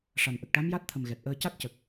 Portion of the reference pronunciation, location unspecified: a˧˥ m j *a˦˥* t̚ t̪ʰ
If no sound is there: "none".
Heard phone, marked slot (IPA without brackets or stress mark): a˦˥